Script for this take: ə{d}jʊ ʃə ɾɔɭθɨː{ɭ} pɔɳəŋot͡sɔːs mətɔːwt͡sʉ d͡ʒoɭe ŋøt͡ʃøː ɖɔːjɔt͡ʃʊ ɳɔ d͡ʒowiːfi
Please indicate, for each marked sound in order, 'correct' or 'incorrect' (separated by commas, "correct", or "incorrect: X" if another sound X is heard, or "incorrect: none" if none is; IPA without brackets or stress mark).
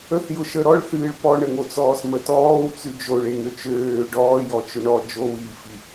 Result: incorrect: θ, correct